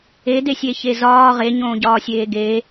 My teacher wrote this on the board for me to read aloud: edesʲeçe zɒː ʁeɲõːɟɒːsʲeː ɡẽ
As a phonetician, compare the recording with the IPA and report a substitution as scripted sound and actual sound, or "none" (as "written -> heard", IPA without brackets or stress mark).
ẽ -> e